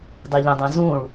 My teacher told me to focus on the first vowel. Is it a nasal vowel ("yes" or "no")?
no